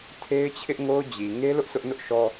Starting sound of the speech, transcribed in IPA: tʰ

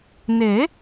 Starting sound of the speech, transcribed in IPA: n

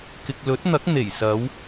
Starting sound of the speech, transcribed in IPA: k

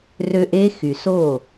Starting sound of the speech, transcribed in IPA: r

